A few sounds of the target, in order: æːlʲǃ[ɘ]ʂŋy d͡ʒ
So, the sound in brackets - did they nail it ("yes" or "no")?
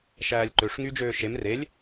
no